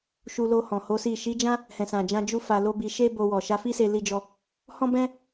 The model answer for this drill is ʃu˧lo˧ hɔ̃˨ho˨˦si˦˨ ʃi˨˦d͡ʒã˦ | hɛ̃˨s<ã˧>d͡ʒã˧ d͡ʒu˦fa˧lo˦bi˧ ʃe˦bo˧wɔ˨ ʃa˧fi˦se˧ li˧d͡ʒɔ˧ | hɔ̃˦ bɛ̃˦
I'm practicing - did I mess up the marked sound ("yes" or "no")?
yes